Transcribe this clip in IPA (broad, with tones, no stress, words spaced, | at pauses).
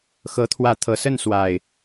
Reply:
xɤ˨˦t̪ʰwä˨˦t̪ʰɤ˨˩sə˥˨n swa˨˩ɪ̯